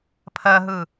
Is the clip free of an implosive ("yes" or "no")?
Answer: yes